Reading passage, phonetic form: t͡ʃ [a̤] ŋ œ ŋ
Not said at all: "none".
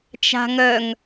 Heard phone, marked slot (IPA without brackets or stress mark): a̤